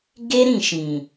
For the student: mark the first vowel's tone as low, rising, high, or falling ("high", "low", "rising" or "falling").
high